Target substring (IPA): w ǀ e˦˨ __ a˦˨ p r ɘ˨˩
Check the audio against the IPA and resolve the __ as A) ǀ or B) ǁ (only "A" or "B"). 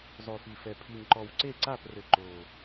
A